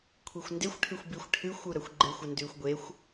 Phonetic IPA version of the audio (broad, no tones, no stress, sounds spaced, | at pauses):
kʷʰ i xʷ n d e xʷ ʈʰ ɨ xʷ b i xʷ ʈʰ ɨ xʷ u ɾ ɐ xʷ ɡ͡ǃ e xʷ ɐ n d ʉː xʷ ɡʷ e xʷ